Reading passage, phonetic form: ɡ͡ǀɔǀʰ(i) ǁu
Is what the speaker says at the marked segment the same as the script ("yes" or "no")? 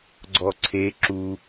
no